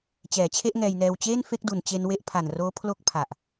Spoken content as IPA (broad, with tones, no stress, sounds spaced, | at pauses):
t͡ɕ ɛː˩˦ t͡ɕʰ e˥˩ ʔ ŋ ɛː˧ j n ɛː˧ w t͡ɕ eː˥˩ n f e˥˩ k̚ d u˨˩ n t͡ɕ e˧ n w e˦˥ ʔ pʰ a˨˩ n r oː˦˥ pʰ l o˥˩ k̚ pʰ a˨˩ ʔ